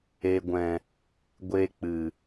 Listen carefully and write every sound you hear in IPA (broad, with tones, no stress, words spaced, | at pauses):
e˨ɡʷɛ̃˨ | ɡʷe˧k͡pɨ˨